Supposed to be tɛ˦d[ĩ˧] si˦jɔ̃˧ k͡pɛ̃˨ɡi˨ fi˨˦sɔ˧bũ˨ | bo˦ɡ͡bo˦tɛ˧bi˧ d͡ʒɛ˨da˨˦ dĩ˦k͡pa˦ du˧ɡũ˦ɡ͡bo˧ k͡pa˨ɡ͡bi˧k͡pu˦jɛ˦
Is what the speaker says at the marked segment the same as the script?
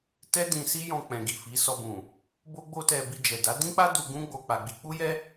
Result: yes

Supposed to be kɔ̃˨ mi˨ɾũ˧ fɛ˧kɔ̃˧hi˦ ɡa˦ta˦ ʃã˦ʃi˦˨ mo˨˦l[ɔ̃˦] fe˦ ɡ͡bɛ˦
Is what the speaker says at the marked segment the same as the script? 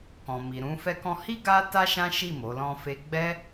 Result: yes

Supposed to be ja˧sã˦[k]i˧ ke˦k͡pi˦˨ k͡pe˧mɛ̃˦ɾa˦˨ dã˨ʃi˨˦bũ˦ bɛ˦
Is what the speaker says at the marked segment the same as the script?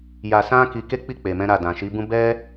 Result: yes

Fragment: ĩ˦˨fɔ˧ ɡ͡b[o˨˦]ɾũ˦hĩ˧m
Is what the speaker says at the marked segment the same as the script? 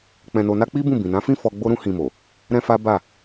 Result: no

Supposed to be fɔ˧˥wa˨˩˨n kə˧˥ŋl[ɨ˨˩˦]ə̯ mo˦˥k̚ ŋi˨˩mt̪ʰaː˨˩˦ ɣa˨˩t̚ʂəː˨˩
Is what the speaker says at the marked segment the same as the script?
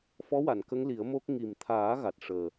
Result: no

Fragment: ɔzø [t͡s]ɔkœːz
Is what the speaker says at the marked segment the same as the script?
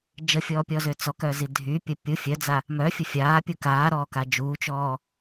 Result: yes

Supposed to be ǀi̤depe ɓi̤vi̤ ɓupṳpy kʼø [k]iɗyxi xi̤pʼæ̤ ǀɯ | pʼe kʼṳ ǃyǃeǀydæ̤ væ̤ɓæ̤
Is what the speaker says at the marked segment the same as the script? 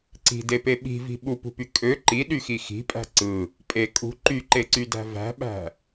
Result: no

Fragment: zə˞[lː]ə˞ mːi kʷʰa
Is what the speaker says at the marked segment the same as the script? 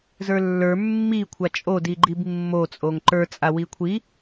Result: yes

